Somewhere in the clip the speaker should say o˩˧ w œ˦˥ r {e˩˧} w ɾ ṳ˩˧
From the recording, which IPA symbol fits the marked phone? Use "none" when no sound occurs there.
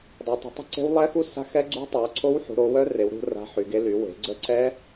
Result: e˩˧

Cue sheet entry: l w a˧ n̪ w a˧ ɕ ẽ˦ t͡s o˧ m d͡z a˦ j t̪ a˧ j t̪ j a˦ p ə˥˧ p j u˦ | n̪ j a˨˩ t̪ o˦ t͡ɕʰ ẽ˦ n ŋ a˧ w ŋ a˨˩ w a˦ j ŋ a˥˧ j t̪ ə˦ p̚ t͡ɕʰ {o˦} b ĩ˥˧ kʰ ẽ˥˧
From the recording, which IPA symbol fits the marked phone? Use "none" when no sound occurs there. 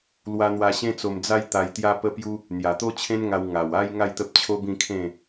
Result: o˦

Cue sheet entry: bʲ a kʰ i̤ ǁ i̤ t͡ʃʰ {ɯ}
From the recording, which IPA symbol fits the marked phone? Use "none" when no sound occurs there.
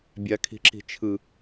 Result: ɯ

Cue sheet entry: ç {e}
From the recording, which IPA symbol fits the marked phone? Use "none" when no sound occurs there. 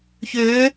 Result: ø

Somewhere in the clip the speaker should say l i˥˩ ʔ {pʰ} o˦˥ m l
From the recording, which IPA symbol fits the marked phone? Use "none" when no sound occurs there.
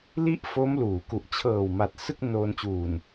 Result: f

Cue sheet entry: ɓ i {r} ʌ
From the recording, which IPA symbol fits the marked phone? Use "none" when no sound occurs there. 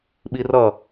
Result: r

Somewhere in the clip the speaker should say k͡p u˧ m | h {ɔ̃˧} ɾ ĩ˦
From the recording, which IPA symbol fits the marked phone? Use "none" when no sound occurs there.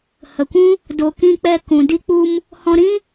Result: ɔ̃˧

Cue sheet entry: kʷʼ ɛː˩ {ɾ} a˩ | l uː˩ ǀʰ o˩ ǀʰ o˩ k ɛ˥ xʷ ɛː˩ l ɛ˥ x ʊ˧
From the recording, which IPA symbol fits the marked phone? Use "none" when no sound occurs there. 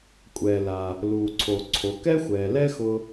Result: l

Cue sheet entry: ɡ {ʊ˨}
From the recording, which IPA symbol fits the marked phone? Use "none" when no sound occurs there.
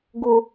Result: ʊ˨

